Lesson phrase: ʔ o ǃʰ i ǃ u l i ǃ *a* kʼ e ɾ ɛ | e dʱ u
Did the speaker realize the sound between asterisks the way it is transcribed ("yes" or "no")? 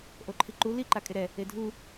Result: yes